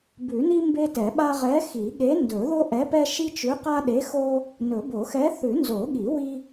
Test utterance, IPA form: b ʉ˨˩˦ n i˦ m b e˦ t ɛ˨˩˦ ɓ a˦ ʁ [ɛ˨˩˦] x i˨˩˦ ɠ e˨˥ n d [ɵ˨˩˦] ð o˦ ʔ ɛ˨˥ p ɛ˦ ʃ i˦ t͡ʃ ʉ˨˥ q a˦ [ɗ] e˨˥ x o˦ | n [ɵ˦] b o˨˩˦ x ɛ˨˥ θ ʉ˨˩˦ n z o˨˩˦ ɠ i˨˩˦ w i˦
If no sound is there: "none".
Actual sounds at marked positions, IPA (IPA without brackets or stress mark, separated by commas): ɛ˨˥, ɵ˨˩˦, ɗ, ɵ˨˩˦